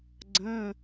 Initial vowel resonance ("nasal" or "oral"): nasal